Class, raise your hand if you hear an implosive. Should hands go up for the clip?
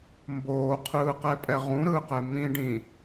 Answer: no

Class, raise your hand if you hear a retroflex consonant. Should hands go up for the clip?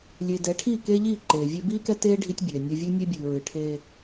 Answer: yes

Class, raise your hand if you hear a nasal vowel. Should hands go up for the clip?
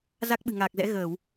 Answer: no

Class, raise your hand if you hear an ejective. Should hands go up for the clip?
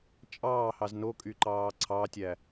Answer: yes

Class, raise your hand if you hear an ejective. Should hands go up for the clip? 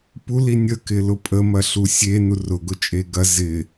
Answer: yes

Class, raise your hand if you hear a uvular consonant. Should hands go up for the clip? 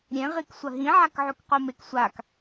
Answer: yes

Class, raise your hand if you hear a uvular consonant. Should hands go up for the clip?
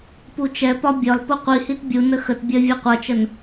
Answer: yes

